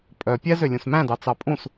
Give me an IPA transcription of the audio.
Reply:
pʼœ pʲɛ zølʲũsmæ̃dɑ t͡sɑpʼũs

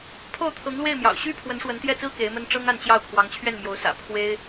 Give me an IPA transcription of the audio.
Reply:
pʰo˥˩ʊ̯t̪ʰɤ˧˥ŋlwe˥˩ɪ̯mjɑ̰˨˩ʊ̯ ɕy˥ pʰwə˧˥nʂwə˧˥nt̪jɛ˥˩t͡sɹ̩˥ ke˧˥ɪ̯mə˥n ʈ͡ʂɤ˥ŋa˥˧nt͡ɕjɑ˥˩ʊ̯ kʰwɑ˧˥ŋt͡ɕʰɥɛ˥˩nmjo˧˥ʊ̯sä̰˨˩ pʰwe˥ɪ̯

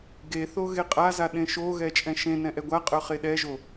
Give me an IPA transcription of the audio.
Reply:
ɡeθo ɣeqʼaza ɗẽʃoɣɛ t͡ʃʼɛ̃ʃẽnɛ̃ ʔɛɡʷaqʼœ χeɗɛʒo

